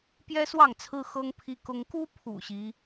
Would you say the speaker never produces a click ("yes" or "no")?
yes